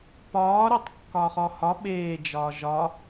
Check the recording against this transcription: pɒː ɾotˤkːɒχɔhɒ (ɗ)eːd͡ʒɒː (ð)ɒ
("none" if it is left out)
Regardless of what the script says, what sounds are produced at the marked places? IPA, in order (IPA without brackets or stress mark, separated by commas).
ɓ, ʒ